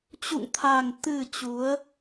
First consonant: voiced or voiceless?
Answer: voiceless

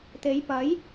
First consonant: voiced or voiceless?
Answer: voiceless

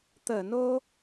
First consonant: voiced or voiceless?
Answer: voiceless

